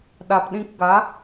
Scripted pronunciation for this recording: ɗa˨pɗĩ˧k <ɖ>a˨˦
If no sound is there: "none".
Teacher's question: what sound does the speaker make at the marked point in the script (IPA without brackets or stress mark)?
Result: ɡ